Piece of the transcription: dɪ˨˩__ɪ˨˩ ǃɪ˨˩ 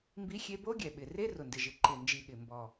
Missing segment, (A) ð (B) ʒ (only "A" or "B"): B